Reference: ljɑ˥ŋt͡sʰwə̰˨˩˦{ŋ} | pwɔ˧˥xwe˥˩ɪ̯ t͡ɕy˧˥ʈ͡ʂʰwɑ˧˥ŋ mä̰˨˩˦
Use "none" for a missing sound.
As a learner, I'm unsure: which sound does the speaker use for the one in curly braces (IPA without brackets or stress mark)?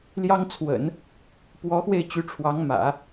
n